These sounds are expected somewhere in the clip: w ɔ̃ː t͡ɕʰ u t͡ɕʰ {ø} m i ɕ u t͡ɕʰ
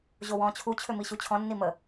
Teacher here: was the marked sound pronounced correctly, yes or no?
yes